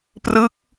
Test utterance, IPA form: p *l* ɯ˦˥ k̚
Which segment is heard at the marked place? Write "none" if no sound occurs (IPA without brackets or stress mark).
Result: r